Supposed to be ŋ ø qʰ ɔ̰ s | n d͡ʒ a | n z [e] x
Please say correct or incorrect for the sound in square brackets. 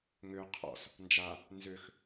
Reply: incorrect